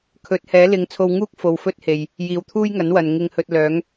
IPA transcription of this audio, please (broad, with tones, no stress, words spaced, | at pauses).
kʰɵ˨˥t̚hɛː˨˥ lɪ˨˥ŋt͡sʰo˧wŋuː˥k̚ fo˨wfɵ˥t̚ he˨j | jiː˨wt̪ʰuː˥jŋɐ˨˥nwɐ˨n ŋɪ˧ŋhɵ˧t̚ lœː˨˥ŋ